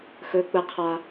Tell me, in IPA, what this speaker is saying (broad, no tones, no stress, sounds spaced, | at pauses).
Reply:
x ɵ k͡p ə qʰ a